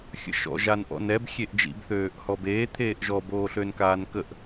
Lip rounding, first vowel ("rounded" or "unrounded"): unrounded